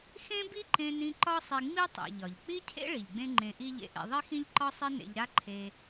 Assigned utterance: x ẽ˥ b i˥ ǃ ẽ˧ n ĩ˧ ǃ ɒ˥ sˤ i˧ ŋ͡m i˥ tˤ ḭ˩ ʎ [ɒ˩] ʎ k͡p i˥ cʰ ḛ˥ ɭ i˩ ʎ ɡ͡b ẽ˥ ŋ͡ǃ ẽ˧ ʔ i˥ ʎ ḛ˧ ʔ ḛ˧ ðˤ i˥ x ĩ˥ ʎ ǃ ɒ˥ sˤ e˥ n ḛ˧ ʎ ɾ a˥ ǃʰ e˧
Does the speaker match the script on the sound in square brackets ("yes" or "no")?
yes